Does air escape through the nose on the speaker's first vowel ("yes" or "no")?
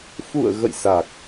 no